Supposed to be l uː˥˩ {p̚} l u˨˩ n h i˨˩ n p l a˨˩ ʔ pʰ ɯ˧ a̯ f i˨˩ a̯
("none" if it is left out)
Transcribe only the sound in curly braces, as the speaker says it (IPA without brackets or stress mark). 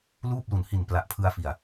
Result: p̚